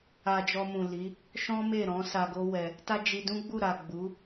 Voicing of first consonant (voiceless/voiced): voiced